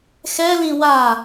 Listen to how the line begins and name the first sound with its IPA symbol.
x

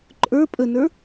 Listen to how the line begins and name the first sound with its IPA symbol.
ǃʼ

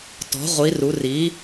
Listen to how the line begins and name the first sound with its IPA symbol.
t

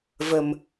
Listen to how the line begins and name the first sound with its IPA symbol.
v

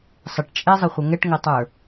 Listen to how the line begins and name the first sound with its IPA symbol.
sˤ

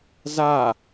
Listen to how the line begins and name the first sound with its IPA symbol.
z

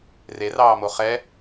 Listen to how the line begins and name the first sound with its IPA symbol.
r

